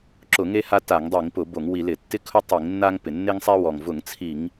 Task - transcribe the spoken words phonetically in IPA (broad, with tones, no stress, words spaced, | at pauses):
ǁʊ˧˩˧ŋe˦ha˦ ta˧˩˧ŋdˤi˧˩˧ŋpʊ˧˩˧ bo˧˩˧ŋwi˧˩˧lɪ˧˩˧ tːɪ˦kʰʊ˦ tˤi˧˩˧ŋnːa˦ŋ pɪ˩nːe˦ŋsˤɛ˦wɔ˩ŋ vʊ˧˩˧ŋt͡sʰi˧˩˧ŋ